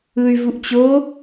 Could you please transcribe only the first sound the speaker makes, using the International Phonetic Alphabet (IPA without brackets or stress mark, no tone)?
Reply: ɯ